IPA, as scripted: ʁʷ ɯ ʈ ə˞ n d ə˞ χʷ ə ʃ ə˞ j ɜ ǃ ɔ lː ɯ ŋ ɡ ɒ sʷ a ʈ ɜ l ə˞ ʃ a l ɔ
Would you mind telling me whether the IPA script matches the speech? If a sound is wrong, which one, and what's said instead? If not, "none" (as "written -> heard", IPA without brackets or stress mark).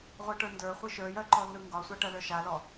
ə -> ɯ